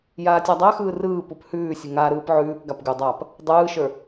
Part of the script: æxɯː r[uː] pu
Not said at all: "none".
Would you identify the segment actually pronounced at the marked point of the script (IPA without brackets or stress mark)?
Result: ɯː